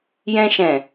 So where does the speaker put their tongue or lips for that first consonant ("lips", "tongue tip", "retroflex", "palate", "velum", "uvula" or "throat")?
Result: palate